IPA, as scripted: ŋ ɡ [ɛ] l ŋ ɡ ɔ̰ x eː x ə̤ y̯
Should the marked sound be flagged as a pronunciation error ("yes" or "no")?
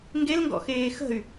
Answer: yes